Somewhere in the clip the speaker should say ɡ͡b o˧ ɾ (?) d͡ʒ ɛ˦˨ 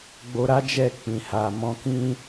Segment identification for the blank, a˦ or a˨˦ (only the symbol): a˦